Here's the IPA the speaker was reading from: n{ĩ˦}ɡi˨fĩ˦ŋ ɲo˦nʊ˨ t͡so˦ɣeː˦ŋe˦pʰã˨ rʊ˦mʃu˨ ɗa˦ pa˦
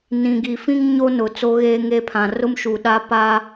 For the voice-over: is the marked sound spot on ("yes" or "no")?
no